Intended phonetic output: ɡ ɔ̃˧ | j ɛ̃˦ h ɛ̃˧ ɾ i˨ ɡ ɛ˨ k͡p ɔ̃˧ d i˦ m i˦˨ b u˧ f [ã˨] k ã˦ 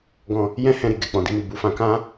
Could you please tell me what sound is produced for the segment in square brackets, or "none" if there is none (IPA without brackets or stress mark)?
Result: ã˧